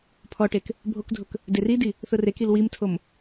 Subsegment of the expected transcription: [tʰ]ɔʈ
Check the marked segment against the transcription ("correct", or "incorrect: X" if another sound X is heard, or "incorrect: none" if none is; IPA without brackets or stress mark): incorrect: pʰ